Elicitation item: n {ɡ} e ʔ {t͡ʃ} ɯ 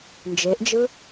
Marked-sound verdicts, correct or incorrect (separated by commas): incorrect, incorrect